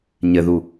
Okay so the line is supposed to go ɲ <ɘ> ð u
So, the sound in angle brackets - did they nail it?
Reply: yes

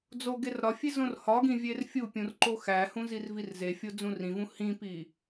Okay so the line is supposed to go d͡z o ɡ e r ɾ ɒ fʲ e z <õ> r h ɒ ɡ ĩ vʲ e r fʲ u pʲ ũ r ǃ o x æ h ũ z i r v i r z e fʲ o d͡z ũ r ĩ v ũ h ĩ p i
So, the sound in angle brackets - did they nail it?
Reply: yes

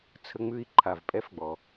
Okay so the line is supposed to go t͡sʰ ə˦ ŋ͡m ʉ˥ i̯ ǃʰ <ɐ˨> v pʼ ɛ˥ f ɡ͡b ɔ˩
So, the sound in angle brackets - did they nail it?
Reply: no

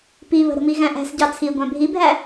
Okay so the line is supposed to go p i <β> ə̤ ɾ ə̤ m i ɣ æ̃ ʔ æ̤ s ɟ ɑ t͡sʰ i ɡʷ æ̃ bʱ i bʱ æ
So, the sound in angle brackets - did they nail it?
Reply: yes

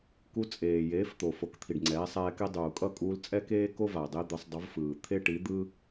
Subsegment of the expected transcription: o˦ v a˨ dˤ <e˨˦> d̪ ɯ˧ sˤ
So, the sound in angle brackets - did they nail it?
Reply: no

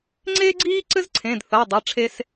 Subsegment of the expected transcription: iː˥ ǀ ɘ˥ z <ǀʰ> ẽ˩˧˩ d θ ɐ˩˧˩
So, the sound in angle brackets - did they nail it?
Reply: yes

